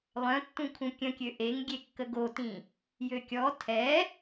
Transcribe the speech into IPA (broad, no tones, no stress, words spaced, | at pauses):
lˠœ̃tːũ kʰũkʲə̃kʲø ʔeŋɡʲekːə ɡotĩ | jøkʲɔ tʰɛ